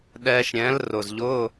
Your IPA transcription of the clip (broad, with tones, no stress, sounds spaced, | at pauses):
ɗ ɛː˧ ʃ ɾʲ ɛ̃˨˥ l r ʊ˨˩ z ʎ ʊ˧˥˧